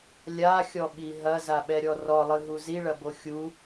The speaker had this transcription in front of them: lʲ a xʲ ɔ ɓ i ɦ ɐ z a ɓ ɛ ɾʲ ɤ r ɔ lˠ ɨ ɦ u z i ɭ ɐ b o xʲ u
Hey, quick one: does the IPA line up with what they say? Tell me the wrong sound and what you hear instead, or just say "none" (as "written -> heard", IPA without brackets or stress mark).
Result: ɤ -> ɔ